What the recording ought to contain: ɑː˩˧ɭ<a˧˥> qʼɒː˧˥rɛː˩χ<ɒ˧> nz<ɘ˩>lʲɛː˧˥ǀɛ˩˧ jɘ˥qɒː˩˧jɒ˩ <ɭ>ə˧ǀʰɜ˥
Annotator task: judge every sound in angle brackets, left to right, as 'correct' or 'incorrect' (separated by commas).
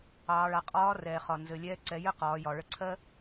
incorrect, incorrect, correct, correct